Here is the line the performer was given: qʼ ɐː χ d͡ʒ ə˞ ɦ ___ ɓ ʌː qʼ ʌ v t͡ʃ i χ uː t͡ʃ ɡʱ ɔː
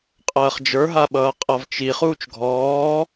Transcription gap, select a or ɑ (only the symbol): a